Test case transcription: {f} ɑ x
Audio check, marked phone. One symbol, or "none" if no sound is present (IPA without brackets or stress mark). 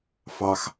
f